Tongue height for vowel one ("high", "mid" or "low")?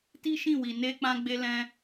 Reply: high